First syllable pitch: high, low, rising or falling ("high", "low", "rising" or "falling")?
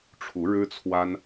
rising